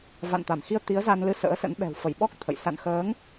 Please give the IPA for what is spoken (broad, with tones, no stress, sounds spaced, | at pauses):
v a̰˧˨ n t̪ a˧˩ m x i˧ ə̯ t̪ i˨˦ ə̯ z a˧ n l ɨ˧ s ə̰ː˧˥ s ə̰˧˥ n ɓ ɛ̤˨˩ w f ə˧˩ j ɓ ɔ˦˥ k̚ t̪ʰ ə̰˧˨ j s a̰˧˨ n x əː˨˦ ŋ